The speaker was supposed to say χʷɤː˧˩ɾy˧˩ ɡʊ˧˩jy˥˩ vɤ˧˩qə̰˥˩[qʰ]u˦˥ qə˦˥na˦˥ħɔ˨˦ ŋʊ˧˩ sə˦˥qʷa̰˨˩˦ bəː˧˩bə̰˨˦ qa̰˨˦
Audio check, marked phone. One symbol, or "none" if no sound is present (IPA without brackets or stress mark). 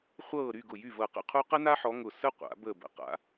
qʰ